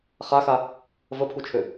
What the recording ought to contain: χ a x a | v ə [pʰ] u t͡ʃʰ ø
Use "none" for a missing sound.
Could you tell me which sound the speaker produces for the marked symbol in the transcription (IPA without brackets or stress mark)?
pʰ